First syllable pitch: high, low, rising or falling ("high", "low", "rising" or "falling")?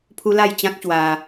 high